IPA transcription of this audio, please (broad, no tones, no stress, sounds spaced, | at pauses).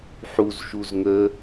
ħ u z ʃ u z ŋ ə